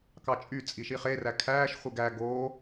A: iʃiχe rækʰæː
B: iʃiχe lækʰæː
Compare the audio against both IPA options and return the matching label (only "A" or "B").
A